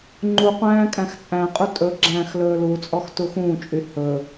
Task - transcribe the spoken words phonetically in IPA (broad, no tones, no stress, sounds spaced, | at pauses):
ŋ͡ǃ u qʷ æ̃ː kʼ æ̃ x t͡sʼ æ̃ qʼ u tʼ ɵ ɡ͡ǁ æ̃ː x l ɵː l u t͡sʼ ɔ x t u x ũː t͡ʃʼ y h ɵ